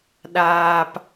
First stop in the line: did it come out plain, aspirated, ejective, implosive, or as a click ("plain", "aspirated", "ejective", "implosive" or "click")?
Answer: implosive